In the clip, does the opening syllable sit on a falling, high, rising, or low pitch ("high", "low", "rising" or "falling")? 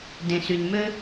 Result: low